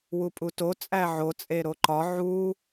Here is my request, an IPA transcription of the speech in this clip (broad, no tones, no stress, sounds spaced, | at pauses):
w u pʼ u t o t͡sʼ æ ʕ o t͡sʼ e ɾ o ǃ ɒ ʕ u